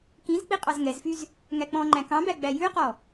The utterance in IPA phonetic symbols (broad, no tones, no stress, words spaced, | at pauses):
kĩzk͡pi qʼɑzŋɛzfyz | ŋæk͡pɔ̃ŋ͡ǃæ̃ kɑ̃bæ ɡ͡bæjʉqɔ